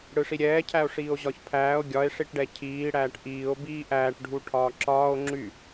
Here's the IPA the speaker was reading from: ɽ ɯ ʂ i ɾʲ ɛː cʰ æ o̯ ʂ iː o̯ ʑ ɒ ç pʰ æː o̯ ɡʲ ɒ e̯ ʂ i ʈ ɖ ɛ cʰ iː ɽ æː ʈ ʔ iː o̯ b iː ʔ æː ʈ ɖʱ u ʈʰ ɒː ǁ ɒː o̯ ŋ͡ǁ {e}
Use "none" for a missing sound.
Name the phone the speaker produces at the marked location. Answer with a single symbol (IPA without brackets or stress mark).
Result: y